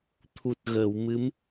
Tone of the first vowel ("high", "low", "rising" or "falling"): low